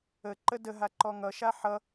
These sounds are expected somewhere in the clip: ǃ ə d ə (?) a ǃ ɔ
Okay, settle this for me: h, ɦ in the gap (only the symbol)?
ɦ